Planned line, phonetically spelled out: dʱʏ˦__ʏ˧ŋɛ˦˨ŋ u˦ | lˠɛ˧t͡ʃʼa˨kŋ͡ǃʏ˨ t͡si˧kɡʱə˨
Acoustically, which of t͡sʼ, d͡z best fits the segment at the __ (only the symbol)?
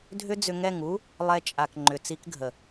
d͡z